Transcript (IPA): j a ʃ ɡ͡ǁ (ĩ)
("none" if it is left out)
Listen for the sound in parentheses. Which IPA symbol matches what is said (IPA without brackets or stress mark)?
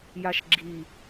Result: i